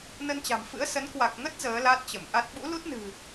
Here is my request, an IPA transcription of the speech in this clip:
nə˧nt͡ɕa̤˨˩mfɨ̰˧˥ə̯sə˨˦n kwa˨˩k̚ŋə˦˥t̚ zəː˨˦la˦˥t̚t͡ɕə˧˩m ʔa˦˥t̚ ɓṵ˧˥lu˦˥t̚nɨ̤˨˩

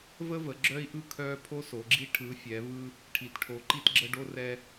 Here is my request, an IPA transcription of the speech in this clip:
və˥və˨˦ ɡ͡ǁœ˥i̯ʔɯ˥ kʰœ˥ pʰo˥so˨˦ɡ͡ǁi˥ ʈʰɯ˨˦ fʲɛ˨˦ vɯ˥ | ʈʰi˨˦tʈʰo˨˦ ǃi˥tɡ͡ǁə˥ ɖo˥rɛ˥

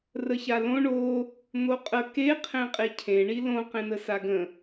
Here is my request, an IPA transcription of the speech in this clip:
rəçalõ ɳo | n̪oqʼə keqʰẽqʼe cʰẽɳi lõqẽnə saɡə̃

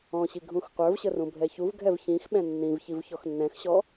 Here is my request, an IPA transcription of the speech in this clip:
ɔ̃ɕi ɡʱũxqʷə˞vɕə rũbʱɛçuvɡʱɛv çĩx ɓɛ̃nːĩvçiv çɔxnːɛ̃xɕɔ

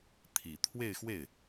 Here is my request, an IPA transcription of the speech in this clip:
t̪ʰi˨˩ t̪ʰwe˥˧ɪ̯xwe˥˩ɪ̯

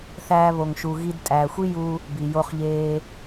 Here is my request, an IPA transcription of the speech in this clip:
θæː˦βo˧ŋʃu˧ ɣi˧dtʼæː˨xʷi˦ ju˧ | bi˨ jo˧χʎeː˧

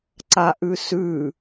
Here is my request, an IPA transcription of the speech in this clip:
ǀaʔʉsʉ

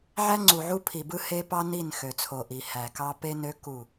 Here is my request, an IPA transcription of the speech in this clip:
ʕæ˦ŋ͡ǀu˨ʕu˦ pʰi˨bɯ˦ he˦pɑ˦ ni˦˨nxø˨t͡sʰo˨ʔi˨ hæ˨kɑ˦ pe˦nø˦ ku˦˨

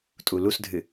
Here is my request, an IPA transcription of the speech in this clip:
tʼulusdʱɨ

